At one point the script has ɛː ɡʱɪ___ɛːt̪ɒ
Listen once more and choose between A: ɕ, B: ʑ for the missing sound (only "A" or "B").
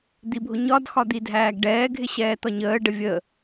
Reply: A